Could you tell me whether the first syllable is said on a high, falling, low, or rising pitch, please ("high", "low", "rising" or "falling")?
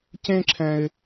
high